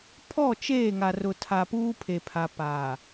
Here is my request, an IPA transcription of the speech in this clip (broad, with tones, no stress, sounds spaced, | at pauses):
pʰ ɔ˦˨ t͡ʃ eː˦˨ ŋ a˨ r ʊ˨ tʰ a˨ p uː˦ pʰ e˨ pʰ a˨ p aː˨